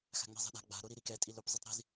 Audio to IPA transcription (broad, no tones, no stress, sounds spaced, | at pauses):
x a̤ ŋ͡m i̤ zˤ ɛ̤ ɗ a̤ ɡ͡b a̤ ɾ o ɾ i ɾ i k ɛ tʼ i l o p zˤ i tˤ ɾ i̤ z